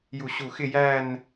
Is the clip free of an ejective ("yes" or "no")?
yes